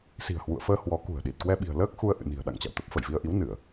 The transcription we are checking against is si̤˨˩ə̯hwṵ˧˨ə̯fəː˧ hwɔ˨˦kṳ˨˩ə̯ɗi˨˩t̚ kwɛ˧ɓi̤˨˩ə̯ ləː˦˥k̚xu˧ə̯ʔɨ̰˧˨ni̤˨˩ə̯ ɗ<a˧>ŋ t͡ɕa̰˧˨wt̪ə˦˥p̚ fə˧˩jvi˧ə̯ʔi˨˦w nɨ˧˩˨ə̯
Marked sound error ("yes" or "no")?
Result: yes